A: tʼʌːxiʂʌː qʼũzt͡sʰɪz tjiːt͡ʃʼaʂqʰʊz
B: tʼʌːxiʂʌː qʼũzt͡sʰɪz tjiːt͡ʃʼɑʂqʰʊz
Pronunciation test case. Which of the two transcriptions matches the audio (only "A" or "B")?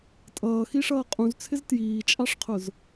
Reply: B